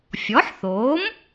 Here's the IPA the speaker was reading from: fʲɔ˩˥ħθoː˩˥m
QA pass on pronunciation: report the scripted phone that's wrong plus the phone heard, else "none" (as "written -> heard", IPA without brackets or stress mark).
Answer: none